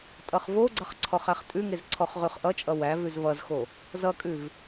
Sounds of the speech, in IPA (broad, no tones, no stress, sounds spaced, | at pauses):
tʼ ʌ χ v o ɡ͡ǀ ʌ χ ǀʰ ɔ χ æ χ tʼ ʉ ŋ e z ǀʰ ɔ χ ʁ ʉ χ ʔ ʌ t͡ʃʼ ʌ w æ v ʉ z v ʌ z x o | z ʌ kʼ ʉ v